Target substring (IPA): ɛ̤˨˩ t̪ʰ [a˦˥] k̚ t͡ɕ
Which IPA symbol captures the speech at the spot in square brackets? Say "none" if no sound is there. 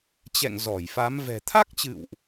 a˦˥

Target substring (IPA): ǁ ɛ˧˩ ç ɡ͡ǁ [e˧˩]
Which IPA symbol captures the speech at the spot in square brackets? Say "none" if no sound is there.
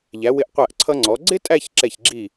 i˧˩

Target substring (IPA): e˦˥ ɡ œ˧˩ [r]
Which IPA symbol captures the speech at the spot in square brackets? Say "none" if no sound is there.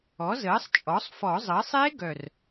r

